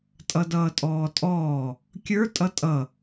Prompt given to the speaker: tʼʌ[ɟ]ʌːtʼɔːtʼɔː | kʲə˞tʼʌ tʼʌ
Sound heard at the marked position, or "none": d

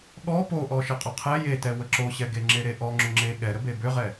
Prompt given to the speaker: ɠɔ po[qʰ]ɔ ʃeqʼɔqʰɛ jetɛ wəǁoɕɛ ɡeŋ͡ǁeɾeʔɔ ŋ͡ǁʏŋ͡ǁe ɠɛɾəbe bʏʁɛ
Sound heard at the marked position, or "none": ʔ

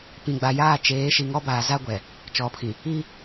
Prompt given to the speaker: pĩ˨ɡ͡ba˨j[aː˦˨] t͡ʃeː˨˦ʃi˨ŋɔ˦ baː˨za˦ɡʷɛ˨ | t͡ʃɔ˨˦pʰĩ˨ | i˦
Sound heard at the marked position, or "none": aː˦˨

